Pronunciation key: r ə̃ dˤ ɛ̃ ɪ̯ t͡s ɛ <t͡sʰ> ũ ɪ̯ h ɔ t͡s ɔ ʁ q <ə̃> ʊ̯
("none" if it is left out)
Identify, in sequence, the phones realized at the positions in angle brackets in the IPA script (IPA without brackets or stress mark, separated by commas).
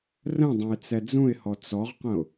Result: d͡z, ə̃